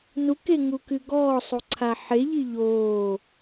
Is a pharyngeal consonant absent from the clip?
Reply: no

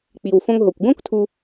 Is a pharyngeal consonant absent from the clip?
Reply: yes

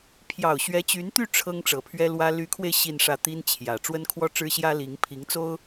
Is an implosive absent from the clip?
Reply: yes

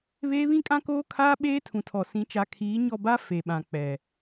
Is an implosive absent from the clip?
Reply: no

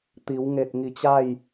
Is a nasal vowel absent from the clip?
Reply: yes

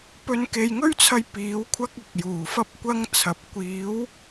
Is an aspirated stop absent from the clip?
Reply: no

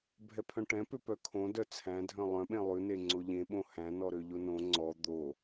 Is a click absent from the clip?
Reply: no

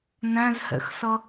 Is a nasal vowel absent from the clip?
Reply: no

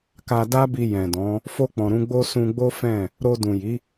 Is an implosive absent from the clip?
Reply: yes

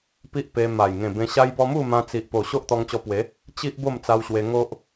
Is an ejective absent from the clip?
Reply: yes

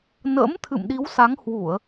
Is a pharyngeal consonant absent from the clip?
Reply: yes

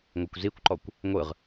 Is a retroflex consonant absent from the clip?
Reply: yes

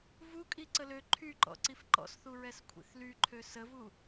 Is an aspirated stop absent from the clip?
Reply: no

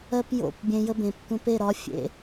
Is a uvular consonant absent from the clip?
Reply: yes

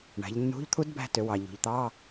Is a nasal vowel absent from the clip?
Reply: yes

